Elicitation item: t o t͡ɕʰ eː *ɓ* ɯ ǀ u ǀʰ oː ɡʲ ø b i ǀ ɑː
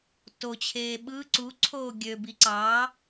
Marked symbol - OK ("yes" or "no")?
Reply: yes